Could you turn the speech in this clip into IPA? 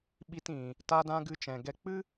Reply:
ɓi˦tĩ˧ | ta˦dã˦ ɡɨ˦t͡ʃɛ̃˧ɡɛ˦ k͡pɨ˦

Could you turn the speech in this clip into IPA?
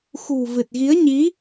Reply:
xṳ˨˩vɨ˨˩t̚ɣi˨˦ə̯ɲi˨˦

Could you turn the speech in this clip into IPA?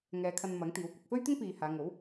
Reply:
ŋɛː˨˧kʰɐ˧n mɐ˨˥ŋt̪iː˨˥w kʷɐ˧k̚fɵ˥ɥt̪ɪ˥ŋ piː˨ haː˨˧ŋo˨˥w

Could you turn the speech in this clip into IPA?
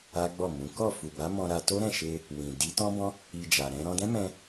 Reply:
a˦ɡ͡bɔ˦˨mũ˨˦ kɔ˦˨fu˨ba˨˦ mɔ̃˧ɾa˧ to˦ɾɛ̃˦˨ʃe˧ | wĩ˨ di˨˦ tɔ̃˦bɔ̃˦ | i˧d͡ʒa˨ɾɛ̃˨˦ ɾɔ̃˧dɛ̃˦mɛ̃˧

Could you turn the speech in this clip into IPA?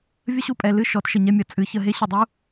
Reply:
vʲə˥ɕu˥pʼɛ˧lɨ˥ ʃɔ˩˥t ʃə˧ ɲɛ˧mʲə˩˧t͡sʼɨ˩˥ çə˧ɦe˥ ɕə˧dˤu˥

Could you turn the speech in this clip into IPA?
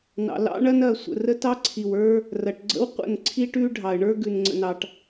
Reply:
nɑ̰˨ lɑ̰˦ɳɐ˦nɐ˦˨sʷə̰˨ rə˦tɑ˦ ǀʰi˨wə˞˦ | rɐ˨ʈɡ͡ǀə̰˦w qʷə̰˦˨nǀʰi˦ʈʉ˦ ɖʱɑ˨ə̯ɳə˞˦ ɡʉ˨nŋ͡ǀə̰˨nɑ˨ʈ

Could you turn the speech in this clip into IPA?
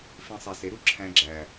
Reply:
fẽ˧sˤi˨se˨˦ɾu˨ ǁʰæ̃˧ɡ͡ǁæ˨

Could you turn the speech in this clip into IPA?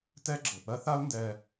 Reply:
tɛ˥ɡ͡ǁɤ˩pɜ˥ θa˥ʊ̯ndɛ˧

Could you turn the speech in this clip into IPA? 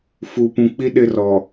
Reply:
fu˨pũ˨k͡pi˦ ɗɪ˦rɔ˨

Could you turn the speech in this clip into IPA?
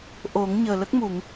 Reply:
ʔo˨˩˦ŋɲəː˨˩ lə˦˥k̚mu˨˩˨ŋ

